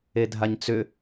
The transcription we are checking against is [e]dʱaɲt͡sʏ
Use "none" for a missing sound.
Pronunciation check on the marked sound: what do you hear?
e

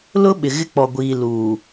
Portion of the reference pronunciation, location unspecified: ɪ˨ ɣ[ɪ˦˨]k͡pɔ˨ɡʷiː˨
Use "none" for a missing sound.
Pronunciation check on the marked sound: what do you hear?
ɪ˦˨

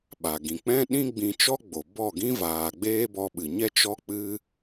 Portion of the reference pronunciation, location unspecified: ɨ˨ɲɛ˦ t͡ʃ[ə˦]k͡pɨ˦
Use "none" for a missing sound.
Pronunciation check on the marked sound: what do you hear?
ɔ˦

